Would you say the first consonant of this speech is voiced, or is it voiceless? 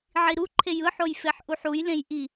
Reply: voiced